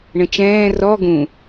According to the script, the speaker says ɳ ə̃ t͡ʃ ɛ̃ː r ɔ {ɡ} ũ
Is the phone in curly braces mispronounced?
no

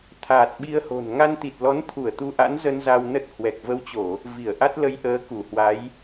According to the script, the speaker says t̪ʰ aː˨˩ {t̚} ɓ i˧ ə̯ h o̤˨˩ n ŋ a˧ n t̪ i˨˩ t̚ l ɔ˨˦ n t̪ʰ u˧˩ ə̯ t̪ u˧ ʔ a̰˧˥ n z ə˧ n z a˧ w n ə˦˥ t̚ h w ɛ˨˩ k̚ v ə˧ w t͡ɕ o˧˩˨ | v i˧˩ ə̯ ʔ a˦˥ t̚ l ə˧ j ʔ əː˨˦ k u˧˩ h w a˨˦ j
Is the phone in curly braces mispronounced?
no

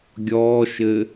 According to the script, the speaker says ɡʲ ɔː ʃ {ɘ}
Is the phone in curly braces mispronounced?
no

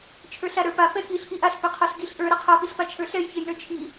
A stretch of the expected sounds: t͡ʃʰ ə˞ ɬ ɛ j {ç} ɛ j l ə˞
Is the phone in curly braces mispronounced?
no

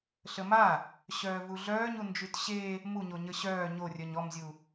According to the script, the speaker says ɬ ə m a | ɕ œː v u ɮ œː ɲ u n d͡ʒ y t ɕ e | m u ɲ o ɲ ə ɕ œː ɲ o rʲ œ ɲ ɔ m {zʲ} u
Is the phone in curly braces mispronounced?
no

